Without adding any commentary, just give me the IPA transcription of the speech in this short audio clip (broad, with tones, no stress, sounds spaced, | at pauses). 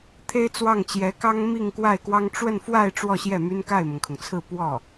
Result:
t̪ʰ e˥ ɪ̯ t͡s w ɑ˥˩ ŋ t͡ɕ j ɛ˧˥ k ɑ˥ ŋ m i˥˧ ŋ k w a˥˩ ɪ̯ k w ɑ˥ ŋ ʈ͡ʂ w ə˥˧ n f w a˥˧ ɪ̯ ʈ͡ʂ w ɔ˥˧ ɕ j ɛ˥˩ m y˥ n k a˥˩ ɪ̯ m ʊ˩ ŋ kʰ ʊ˩ ŋ t͡sʰ ɹ̩˥˧ p w ɔ˥˩